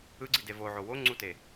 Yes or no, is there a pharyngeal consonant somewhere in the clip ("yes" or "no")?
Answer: yes